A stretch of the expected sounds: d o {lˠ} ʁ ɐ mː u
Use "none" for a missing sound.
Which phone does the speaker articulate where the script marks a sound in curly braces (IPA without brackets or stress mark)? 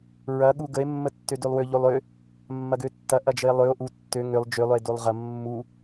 lˠ